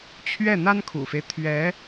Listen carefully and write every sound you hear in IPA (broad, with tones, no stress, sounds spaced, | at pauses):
t͡ɕʰ ɥ ɛ˥˩ n̪ a˥ n kʰ ṵ˨˩ f e˦ ɪ̯ t̪ʰ ɥ ɛ˧˥